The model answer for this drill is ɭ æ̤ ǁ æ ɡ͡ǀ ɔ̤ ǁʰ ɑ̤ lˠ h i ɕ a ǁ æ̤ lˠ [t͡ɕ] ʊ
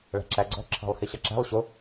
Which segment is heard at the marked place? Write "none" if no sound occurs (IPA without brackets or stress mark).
ɕ